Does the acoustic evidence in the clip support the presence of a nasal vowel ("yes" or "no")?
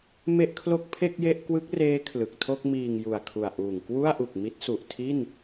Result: no